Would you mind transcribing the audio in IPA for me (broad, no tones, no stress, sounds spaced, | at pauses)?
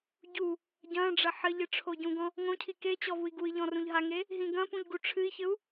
ɟ u | ɟ ɐ̃ ɖ͡ʐ ɐ ħ ɘ ʎ ɨ ʈ͡ʂʰ o ɟ ũ ɡ ɔ̃ | ŋ õ cʰ i k e t͡ɕ ɔ v u i̯ ɡ u i̯ ʎ ɔ̃ r ũ ʎ ɦ a ŋ e | ɦ ĩ ɡ ɐ̃ p ũ ʎ ɡ u ʈ͡ʂʰ ɨ i̯ ç ɘ u̯